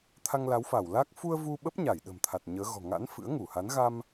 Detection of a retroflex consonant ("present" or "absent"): absent